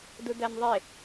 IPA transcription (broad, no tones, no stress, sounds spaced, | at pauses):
d u d æ n ðˤ e